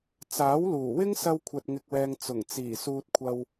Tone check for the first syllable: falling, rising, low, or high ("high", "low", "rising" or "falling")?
rising